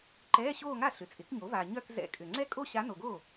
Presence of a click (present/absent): present